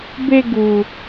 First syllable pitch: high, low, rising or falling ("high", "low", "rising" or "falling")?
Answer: high